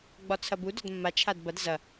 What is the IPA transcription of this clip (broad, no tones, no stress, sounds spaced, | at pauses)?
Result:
ɡ͡b ɒ t͡sʰ ɐ b u d ɒ d mː a t͡ʃʰ a d b ɐ d z ɐ